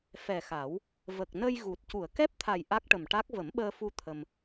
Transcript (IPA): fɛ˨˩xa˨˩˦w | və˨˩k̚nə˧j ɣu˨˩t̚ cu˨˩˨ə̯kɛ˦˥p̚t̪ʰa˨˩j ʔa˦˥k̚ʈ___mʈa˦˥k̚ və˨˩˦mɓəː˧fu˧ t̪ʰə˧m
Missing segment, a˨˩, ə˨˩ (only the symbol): ə˨˩